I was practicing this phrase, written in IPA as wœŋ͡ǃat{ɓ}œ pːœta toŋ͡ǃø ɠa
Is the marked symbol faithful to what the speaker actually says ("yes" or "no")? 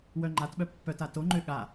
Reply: yes